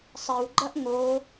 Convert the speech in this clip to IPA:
sˤ i w ɡ͡ǃ ɐ ʔ ŋ o

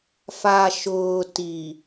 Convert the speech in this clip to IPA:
f a˨ ʃ ʊː˨ t i˨

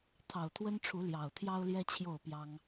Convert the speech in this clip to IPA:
t̪ʰ ɑ˨˩ ʊ̯ t̪ʰ w ə˦ n ʈ͡ʂʰ u˨˦ l j ɑ˨˩ ʊ̯ t̪ʰ j ɑ˦ ʊ̯ l j ɛ˦ t͡ɕʰ j o˥˨ ʊ̯ p j ɑ˦ ŋ

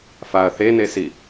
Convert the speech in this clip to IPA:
f a ɐ̯ θ e n e s i

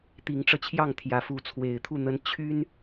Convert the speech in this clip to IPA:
t̪ i˨˦ ŋ ʈ͡ʂ ɤ˧ t͡ɕʰ j ɑ˥˨ ŋ t̪ʰ j ä˨˦ f u˨˦ t͡sʰ w e˨˩ ɪ̯ t̪ʰ u˥˨ n̪ ə˦ n t͡ɕʰ y˦ n

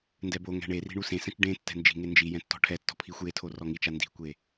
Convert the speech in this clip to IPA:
n d ɛ b o ŋ ɛ̤ ɳ e r i̤ ɳ u s ẽ s ɛ̃ t͡ʃ ɖ ẽ tː ɛ̤ n d͡ʒ i̤ ŋ e n d͡ʒ i j ɛ̃ tː ɔ̤ ʈʰ ɛ tː ɔ̤ pʰ i xʷ j e tʰ o r ɔ ŋ i t͡ʃ a n d i̤ kʷ e

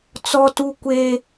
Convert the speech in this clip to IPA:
t͡s ɔ˦ t u˦ kʷ eː˦

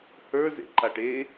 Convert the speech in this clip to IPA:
h ə˞ z ḛ ǃ a ʈ e

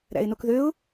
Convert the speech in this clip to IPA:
ɾ æ̰ ɪ̯ n o k ð ø ʊ̯

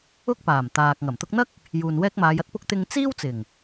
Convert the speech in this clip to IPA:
ʊ˥ k̚ p aː˨˩ m t̪ aː˨ k̚ ŋ ɐ˨˩ m t̪ ʊ˧ k̚ n̪ ɐ˥ k̚ | j uː˨ n w ɛː˥ k̚ m aː˨˧ j ɐ˥ t̚ p ʊ˥ k̚ t̪ ɪ˧ ŋ t͡s iː˥ w t͡s ɪ˨˩ ŋ

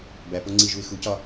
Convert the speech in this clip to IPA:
b æ p o ŋ͡ǀ i ʒ u ɪ̯ x u c ɒ

